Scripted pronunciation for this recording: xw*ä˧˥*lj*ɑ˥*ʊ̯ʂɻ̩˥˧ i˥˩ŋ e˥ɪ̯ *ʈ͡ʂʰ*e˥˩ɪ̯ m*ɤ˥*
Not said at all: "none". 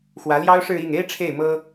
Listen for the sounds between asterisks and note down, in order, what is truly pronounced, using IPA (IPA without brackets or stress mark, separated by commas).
ä˧˥, ɑ˥, ʈ͡ʂʰ, ɤ˥